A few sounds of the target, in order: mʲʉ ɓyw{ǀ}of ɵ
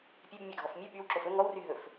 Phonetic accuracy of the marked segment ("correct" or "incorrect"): incorrect